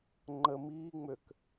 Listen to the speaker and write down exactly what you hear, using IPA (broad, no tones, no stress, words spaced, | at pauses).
ŋ͡ǃə miːŋ͡møk